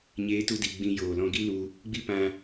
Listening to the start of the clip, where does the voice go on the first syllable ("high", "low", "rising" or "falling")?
rising